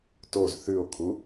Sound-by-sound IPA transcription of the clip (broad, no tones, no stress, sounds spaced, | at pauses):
t o z θ ʉ o̯ kʰ u